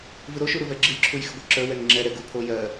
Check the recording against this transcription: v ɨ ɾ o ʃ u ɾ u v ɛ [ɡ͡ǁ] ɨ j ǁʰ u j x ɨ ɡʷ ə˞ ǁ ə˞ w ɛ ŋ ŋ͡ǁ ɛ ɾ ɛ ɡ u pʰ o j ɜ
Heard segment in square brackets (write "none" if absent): ɡ͡ǁ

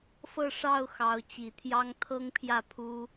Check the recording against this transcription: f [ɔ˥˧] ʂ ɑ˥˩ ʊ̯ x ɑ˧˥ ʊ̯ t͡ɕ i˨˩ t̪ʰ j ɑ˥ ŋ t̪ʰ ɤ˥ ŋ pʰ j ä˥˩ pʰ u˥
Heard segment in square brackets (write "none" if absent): ɤ˥˧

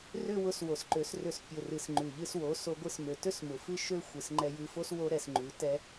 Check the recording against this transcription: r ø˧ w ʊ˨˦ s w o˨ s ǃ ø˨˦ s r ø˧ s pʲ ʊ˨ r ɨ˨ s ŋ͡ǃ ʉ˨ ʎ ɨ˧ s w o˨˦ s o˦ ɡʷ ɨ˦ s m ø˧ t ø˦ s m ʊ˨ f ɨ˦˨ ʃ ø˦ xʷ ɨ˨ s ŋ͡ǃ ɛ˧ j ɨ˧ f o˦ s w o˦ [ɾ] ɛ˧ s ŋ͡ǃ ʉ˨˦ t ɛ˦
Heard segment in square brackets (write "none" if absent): ɾ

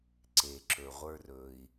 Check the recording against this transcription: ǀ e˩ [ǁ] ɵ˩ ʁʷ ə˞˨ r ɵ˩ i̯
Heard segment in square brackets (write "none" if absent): ǁ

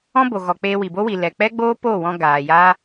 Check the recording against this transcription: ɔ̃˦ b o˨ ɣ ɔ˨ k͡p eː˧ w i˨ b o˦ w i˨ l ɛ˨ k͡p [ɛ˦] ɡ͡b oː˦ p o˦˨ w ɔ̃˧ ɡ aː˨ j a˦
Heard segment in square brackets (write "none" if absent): ɛ˦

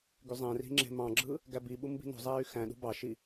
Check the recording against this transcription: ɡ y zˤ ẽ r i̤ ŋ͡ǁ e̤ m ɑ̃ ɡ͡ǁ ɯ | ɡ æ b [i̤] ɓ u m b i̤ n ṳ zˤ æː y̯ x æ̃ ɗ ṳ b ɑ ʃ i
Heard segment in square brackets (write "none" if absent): i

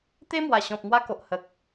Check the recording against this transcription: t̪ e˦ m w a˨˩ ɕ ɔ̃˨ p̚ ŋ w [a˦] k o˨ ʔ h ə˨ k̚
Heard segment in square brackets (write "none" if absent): a˧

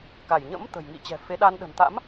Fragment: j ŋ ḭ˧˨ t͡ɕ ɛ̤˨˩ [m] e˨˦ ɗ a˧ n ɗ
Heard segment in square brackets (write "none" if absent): f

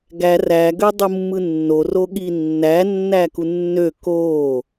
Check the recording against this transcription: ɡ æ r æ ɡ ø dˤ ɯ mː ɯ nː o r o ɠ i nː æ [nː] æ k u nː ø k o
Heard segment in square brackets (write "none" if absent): nː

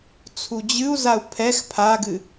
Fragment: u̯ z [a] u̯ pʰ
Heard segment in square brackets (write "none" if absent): a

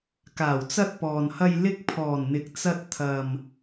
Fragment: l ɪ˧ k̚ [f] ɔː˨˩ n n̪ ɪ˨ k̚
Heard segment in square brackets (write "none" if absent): pʰ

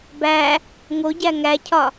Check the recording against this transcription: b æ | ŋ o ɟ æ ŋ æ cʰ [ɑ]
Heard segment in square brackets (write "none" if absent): ɒ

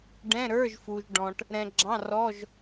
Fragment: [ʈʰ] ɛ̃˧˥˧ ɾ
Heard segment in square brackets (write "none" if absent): ɖ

